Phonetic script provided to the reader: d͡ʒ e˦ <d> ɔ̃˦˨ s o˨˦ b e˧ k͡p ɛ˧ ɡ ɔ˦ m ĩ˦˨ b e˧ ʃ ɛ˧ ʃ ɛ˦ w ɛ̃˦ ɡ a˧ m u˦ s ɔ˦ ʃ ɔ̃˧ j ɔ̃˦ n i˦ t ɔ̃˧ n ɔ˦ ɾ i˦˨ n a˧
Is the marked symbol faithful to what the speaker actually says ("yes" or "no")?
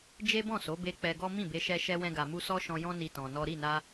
no